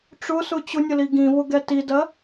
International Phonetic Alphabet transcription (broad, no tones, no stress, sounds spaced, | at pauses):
ʈ͡ʂ ʊ s ʊ t͡ɕ ʊ nʲ ə l i ɡ ĩ v ʊ ɡ ɛ t i d ɜ